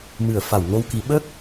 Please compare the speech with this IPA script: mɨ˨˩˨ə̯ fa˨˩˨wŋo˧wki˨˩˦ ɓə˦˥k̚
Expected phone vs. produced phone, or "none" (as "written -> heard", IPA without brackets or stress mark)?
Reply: none